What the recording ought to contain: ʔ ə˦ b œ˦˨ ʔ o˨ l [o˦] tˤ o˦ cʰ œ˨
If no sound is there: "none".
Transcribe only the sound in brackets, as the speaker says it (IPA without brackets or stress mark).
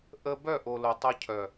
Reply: o˨